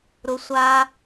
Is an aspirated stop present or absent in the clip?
absent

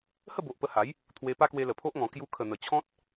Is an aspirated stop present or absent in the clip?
present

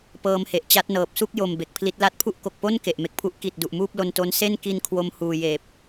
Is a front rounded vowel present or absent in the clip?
absent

